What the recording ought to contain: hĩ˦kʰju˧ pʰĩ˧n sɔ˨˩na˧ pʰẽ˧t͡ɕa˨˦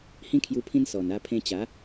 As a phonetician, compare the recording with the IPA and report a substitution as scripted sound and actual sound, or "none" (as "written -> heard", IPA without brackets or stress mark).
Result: none